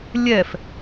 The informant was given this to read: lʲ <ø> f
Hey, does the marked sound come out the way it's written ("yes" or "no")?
no